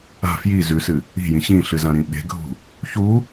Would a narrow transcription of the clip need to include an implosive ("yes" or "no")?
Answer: yes